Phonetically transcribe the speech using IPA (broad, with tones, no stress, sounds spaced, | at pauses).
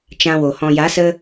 t͡ʃ ã˧ w o˨ h ɔ̃˨ j a˨˦ s ə˧